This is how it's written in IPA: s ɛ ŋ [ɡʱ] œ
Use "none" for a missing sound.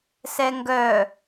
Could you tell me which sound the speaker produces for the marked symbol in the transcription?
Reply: ɡ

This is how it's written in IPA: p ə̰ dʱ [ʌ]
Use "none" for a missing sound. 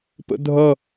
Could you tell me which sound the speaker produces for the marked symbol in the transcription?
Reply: ʌ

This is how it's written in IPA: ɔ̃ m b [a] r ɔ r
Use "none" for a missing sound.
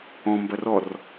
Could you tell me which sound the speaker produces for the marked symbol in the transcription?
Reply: ɐ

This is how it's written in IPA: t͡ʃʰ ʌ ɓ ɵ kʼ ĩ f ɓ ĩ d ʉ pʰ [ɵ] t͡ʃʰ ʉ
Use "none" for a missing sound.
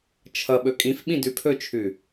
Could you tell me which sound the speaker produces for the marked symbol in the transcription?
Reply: ɵ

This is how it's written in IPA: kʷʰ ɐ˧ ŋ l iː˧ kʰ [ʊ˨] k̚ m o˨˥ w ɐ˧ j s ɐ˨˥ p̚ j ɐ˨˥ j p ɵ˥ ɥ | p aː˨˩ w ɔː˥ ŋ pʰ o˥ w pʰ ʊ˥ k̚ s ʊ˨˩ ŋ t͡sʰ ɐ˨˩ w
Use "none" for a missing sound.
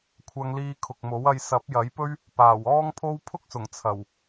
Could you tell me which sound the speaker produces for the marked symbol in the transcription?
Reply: ʊ˨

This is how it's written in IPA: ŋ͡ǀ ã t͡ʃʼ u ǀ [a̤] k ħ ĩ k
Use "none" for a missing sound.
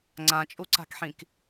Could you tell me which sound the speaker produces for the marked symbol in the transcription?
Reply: a̤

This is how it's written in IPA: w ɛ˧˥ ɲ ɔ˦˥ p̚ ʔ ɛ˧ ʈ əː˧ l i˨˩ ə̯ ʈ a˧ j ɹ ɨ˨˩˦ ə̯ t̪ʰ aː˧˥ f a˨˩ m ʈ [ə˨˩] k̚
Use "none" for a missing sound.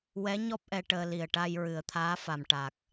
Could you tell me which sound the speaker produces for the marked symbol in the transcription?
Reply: a˨˩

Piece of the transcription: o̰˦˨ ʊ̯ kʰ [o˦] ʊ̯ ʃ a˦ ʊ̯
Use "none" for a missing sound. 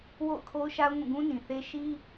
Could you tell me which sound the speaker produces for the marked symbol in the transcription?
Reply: o˦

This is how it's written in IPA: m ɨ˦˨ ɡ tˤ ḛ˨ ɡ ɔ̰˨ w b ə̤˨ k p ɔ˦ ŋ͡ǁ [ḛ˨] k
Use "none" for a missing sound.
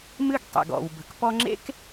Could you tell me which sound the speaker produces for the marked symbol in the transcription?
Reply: ḛ˦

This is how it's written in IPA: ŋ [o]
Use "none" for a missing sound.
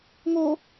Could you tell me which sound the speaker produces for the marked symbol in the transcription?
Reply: o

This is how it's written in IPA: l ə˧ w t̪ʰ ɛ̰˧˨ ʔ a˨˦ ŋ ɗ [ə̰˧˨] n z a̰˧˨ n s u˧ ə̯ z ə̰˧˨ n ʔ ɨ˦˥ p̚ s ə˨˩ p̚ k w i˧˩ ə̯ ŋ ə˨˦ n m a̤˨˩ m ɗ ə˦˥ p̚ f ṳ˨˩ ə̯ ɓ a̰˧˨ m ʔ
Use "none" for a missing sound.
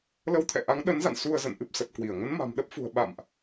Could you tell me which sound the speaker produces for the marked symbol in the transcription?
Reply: ə˨˦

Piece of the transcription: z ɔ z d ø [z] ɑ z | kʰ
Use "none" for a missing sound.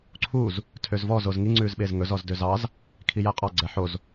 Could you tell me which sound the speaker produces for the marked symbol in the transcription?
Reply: z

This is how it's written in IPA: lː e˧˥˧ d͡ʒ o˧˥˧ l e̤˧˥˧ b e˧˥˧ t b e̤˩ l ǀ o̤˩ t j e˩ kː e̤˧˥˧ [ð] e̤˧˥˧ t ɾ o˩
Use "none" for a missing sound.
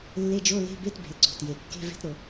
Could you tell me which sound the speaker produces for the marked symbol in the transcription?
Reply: v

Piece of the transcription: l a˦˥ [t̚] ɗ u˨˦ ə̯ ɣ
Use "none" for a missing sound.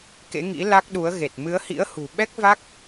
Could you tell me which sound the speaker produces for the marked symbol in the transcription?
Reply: k̚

